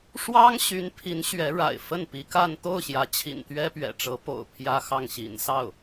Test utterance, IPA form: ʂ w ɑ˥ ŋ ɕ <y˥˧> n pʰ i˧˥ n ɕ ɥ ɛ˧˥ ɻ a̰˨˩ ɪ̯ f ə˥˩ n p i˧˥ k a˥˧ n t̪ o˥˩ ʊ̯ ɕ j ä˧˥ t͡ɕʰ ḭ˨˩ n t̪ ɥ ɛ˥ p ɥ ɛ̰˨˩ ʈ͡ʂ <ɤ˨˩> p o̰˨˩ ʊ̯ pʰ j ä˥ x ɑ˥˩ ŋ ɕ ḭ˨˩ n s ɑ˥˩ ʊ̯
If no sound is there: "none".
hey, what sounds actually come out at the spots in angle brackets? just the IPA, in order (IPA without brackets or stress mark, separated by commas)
y˧˥, ɤ˧˥